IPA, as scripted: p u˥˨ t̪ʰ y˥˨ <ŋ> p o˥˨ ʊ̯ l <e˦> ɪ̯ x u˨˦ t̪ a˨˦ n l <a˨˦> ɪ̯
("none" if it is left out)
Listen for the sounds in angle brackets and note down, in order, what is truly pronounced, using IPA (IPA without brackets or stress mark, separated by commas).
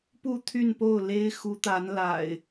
n, e˦, a̰˨˩